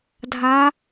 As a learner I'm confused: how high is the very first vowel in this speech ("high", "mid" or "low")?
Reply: low